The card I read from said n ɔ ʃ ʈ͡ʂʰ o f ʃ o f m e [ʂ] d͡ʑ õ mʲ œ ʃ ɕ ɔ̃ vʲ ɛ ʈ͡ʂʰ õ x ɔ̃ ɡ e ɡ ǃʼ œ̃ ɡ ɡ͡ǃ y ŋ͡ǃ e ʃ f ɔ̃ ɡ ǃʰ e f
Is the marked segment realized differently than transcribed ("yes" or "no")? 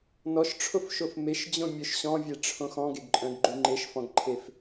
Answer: yes